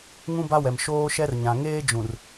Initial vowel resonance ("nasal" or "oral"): nasal